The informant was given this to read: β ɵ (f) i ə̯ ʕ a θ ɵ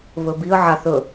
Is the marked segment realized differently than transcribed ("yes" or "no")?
yes